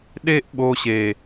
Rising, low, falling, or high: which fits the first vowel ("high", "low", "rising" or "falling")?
high